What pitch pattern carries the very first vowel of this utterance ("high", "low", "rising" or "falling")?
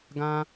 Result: low